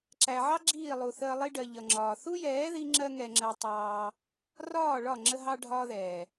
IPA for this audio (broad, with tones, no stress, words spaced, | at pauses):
ǁæ˨ʕɑ˦ ɡ͡ǁiː˦˨lˠu˨ θəː˧lˠi˦ɖɜ˨ ʎʌ˨ŋ͡ǁɒː˨ θu˦jɛː˨˦ ði˦ŋ͡ǁɜ˦ŋɛ˧ŋ͡ǁɜ˧ tˤɑː˧ | rɒː˦˨ɭɒ˦˨ ŋ͡ǁə˦ɦɑ˦ɖʱɒː˦ðɛː˨